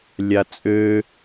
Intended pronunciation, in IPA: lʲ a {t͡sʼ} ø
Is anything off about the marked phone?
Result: no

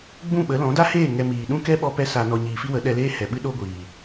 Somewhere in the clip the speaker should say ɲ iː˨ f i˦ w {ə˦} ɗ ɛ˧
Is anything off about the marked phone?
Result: yes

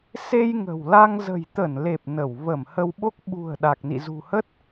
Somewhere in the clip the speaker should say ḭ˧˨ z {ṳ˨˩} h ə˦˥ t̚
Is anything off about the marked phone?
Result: no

